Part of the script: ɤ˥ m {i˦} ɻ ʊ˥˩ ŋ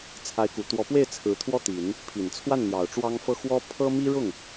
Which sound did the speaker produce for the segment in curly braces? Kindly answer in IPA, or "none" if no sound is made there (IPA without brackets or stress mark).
i˥